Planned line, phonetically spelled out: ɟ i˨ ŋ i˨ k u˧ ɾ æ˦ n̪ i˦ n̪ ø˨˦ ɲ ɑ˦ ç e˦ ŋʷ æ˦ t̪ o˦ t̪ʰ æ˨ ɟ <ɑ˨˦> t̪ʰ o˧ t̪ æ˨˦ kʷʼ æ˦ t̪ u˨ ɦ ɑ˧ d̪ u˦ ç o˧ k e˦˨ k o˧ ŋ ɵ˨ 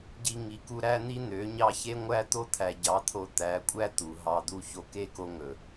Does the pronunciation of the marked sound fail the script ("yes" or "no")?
no